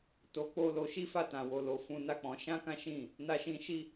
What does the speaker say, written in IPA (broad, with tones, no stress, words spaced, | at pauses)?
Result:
to˧k͡po˦ lo˧ ʃi˦fa˦˨tã˨ wo˨lo˨ fũ˧na˦k͡pɔ̃˧ ʃã˦kã˦ʃĩ˦˨ | na˦ʃĩ˦ ʃi˦